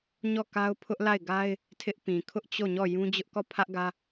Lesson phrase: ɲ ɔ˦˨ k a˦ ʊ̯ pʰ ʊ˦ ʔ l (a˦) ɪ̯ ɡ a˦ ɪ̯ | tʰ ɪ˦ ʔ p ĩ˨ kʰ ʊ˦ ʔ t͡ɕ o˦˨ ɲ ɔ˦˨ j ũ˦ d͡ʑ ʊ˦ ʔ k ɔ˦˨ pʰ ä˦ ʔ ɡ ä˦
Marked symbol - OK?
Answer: no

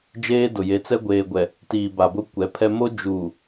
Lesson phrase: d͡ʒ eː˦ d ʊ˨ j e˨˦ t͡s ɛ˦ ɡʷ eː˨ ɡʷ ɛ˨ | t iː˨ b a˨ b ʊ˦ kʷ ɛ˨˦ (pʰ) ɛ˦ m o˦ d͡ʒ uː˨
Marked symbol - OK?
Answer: yes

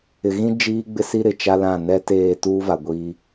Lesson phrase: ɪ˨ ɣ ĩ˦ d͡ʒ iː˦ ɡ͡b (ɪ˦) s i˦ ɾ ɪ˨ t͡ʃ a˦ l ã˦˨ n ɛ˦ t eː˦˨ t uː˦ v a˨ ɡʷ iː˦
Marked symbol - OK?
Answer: yes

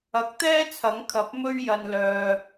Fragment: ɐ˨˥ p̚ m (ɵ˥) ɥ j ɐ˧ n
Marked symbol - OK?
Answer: yes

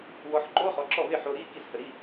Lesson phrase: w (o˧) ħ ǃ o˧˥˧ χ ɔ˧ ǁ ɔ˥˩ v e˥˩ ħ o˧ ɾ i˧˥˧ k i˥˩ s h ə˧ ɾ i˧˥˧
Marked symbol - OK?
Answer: no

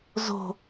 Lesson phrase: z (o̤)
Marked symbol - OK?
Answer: yes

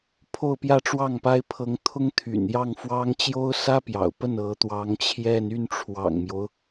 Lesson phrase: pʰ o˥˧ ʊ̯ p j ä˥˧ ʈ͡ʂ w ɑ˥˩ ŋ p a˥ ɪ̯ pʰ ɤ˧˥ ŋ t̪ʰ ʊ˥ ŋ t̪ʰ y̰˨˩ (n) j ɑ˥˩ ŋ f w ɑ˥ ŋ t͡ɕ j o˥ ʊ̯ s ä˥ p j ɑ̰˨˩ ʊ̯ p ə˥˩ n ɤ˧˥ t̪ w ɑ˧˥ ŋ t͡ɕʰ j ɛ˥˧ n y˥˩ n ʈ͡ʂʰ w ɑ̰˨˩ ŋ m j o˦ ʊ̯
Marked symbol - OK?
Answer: yes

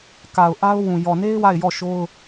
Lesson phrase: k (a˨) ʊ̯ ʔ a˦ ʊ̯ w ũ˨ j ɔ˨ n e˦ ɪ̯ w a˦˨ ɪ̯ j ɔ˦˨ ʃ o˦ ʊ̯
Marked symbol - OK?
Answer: yes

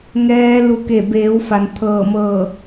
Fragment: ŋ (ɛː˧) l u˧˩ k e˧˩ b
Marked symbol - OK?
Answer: yes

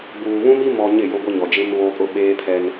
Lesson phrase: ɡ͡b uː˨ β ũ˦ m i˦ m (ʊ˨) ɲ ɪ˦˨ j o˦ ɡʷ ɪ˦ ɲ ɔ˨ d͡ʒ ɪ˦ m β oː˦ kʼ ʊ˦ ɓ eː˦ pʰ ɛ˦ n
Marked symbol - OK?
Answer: no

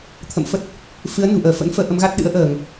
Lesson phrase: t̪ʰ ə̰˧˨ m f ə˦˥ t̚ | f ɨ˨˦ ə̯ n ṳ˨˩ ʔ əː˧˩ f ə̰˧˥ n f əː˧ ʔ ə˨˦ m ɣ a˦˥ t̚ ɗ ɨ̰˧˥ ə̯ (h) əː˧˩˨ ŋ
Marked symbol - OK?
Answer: no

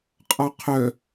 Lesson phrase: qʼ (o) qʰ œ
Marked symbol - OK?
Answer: no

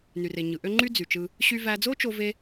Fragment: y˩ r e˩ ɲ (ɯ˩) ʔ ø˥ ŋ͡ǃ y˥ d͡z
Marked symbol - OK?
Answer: yes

